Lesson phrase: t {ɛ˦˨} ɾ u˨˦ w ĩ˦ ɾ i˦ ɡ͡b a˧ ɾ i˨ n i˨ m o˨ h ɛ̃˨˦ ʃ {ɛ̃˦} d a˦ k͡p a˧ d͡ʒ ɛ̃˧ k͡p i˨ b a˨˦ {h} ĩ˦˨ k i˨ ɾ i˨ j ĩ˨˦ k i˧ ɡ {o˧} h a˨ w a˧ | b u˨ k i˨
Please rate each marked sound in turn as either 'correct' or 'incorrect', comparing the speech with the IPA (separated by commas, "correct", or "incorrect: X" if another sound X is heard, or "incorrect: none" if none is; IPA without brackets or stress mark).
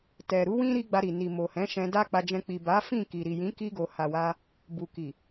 incorrect: ɛ˨, incorrect: ɛ̃˧, incorrect: f, incorrect: o˨